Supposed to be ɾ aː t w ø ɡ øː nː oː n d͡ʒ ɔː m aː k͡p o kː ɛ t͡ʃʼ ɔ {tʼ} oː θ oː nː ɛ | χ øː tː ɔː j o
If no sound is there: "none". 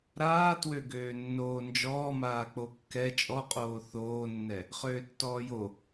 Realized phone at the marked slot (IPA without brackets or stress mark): qʼ